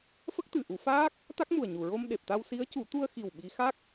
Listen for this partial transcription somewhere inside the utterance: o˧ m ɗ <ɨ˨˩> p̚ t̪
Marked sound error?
yes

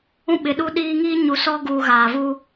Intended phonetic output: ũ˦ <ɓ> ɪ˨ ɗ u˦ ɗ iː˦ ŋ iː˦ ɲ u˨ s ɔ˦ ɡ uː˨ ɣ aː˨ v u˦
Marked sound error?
no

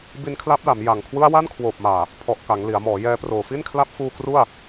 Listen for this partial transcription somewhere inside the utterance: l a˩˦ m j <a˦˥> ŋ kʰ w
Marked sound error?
yes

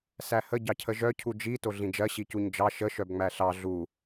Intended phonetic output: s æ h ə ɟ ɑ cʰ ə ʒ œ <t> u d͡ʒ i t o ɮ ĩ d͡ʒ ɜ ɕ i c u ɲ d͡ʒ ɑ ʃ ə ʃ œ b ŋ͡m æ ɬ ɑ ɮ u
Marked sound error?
yes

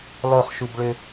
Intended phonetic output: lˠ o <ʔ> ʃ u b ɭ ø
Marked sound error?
yes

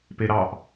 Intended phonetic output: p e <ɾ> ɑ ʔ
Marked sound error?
no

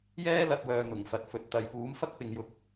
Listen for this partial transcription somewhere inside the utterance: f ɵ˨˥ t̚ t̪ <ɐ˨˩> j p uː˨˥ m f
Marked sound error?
yes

